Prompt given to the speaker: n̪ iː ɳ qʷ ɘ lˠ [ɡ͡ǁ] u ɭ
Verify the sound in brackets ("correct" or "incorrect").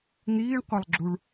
correct